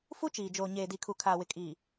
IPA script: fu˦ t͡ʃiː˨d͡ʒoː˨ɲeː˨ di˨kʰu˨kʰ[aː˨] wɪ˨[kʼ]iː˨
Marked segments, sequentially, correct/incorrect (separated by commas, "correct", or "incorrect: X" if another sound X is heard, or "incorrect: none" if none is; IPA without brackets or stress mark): correct, correct